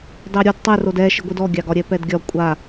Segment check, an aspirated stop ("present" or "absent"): absent